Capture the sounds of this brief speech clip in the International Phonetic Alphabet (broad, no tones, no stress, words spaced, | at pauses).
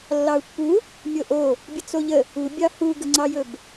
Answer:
lːɑu̯pːu | mʲoʔo | bʲət͡soʎə | ubʲɑ huɡəŋ͡ǀɑjɵb